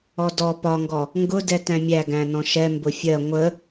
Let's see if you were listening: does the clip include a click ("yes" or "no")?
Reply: no